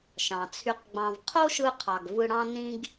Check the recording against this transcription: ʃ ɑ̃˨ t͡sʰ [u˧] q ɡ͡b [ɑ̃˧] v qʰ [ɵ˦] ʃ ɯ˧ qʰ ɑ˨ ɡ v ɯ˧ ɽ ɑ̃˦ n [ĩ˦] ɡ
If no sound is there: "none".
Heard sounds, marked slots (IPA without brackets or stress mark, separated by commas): y˧, ɑ̃˧, o˦, ĩ˦